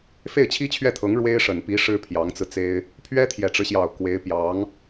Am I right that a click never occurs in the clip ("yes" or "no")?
yes